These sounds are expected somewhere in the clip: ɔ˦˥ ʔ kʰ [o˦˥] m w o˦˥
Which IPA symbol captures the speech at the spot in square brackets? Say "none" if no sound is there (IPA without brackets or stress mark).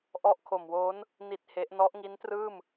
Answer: o˨˩